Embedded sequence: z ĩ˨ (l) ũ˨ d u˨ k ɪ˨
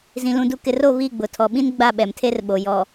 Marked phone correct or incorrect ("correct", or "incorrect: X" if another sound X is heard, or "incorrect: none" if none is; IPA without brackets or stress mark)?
correct